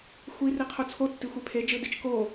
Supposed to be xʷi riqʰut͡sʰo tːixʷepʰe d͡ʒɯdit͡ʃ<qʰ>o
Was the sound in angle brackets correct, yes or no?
no